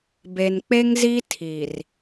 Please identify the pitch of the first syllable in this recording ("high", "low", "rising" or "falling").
low